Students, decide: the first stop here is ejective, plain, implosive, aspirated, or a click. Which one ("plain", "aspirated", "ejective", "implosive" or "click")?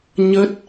plain